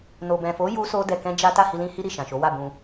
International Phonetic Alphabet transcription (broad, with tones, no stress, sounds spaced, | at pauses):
n o˨ b ɛ̃˨ f o˨˦ j u˦ s o˦ d ɛ˧ k ɛ̃˦ d͡ʒ a˦ t a˦˨ h i˧ l ĩ˦ h i˦ ɾ i˦˨ ʃ ã˨ ʃ o˨˦ w a˦˨ b ũ˧